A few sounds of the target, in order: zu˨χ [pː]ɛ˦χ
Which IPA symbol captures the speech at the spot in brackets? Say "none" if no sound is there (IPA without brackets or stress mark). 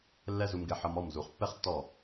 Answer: pː